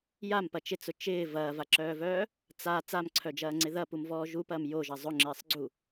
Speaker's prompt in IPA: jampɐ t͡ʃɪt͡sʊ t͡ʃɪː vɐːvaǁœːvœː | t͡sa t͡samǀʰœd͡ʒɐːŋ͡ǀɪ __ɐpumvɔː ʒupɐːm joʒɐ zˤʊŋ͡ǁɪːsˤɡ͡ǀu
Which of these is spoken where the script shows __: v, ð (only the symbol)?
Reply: ð